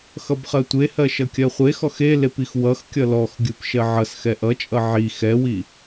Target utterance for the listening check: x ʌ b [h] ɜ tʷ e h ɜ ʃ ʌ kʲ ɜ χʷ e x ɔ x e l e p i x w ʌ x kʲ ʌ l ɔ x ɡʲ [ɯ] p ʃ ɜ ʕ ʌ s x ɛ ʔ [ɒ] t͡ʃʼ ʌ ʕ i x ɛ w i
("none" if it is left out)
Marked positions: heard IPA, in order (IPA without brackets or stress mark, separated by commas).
χ, ɯ, ʌ